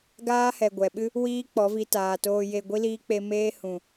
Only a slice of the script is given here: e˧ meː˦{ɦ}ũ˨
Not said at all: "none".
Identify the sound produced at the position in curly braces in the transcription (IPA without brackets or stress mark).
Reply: h